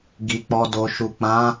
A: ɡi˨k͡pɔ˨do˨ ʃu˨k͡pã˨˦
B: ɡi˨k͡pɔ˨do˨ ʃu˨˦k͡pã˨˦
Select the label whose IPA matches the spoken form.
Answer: A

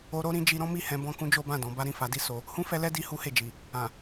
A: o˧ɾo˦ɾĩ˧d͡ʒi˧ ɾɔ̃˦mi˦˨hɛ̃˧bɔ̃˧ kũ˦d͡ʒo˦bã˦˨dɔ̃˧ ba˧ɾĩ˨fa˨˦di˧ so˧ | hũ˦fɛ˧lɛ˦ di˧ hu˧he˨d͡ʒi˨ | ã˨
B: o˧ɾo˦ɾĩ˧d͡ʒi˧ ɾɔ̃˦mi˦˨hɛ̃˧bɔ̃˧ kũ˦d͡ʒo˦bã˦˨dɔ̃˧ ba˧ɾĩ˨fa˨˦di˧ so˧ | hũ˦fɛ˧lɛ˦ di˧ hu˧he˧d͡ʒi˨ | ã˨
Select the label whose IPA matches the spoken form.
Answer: A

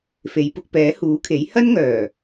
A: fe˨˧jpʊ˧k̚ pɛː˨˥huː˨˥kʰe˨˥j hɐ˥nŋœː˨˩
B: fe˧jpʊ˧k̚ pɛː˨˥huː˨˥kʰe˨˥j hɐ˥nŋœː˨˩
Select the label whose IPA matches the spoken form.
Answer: A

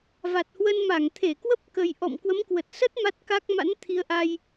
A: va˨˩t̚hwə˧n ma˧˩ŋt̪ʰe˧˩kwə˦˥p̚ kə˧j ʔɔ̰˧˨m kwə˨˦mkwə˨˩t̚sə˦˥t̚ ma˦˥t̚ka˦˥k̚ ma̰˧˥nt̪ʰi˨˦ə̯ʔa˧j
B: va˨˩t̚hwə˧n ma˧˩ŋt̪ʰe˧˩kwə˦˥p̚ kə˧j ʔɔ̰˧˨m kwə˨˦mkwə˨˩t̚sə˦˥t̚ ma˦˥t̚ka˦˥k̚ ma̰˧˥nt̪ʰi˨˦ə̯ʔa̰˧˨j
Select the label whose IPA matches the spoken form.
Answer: A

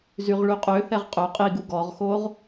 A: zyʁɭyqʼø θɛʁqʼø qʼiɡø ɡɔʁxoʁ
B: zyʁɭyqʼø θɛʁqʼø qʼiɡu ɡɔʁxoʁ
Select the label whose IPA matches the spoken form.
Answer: B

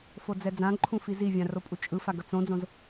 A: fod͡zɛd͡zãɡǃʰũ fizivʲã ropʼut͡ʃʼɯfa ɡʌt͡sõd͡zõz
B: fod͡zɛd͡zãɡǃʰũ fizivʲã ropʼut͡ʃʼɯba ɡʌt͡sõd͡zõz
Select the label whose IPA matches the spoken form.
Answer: A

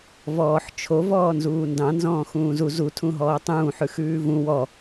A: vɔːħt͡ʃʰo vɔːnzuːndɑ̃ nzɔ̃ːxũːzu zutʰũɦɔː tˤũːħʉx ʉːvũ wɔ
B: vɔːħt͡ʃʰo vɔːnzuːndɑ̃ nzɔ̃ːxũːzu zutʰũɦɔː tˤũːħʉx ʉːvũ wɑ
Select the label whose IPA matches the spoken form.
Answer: A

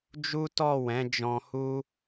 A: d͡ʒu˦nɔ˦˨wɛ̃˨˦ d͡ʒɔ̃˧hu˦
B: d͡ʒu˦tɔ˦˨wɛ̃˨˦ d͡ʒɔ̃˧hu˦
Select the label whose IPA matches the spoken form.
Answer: B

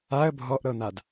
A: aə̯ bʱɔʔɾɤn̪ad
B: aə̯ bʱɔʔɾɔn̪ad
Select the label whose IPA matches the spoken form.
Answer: A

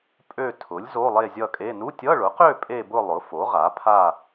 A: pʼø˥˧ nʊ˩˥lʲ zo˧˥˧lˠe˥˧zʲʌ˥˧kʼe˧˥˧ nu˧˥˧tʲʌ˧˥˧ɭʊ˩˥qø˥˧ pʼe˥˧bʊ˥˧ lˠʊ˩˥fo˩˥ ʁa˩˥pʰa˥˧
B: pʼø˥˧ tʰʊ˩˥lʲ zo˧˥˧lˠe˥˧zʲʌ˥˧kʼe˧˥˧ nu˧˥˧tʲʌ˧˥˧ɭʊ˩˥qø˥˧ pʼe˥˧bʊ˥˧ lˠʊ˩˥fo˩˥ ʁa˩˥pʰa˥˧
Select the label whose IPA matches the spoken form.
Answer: B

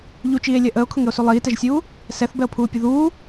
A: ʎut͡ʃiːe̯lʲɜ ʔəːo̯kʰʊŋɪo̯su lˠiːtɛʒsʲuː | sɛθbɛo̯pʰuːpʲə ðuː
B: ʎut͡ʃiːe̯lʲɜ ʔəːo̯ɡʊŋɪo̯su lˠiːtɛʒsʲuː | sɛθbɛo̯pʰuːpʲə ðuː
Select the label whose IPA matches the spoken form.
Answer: A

